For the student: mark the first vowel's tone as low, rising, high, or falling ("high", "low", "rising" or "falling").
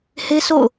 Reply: high